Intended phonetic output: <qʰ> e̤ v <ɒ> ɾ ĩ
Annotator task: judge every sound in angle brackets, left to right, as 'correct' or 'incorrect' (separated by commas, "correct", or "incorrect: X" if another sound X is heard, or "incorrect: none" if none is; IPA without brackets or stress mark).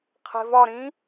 correct, correct